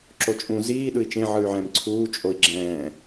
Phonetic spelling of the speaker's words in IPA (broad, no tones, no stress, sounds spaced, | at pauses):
ǁ o t͡ʃʼ ũ z iː ɗ ɯ i̯ t͡ʃ ẽ ʕ ɯ y̯ ʕ ɛ̃ m ǀʰ uː t͡ʃʼ o i̯ ɡ͡ǁ ɛ̃ː